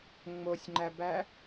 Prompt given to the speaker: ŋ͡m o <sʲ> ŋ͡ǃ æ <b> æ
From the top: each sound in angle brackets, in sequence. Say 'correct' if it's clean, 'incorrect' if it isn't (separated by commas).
correct, correct